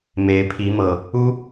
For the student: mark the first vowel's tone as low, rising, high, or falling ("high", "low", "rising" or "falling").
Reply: rising